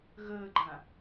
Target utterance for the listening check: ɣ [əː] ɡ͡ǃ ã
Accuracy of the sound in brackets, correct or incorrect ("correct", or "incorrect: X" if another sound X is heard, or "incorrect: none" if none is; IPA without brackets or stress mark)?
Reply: correct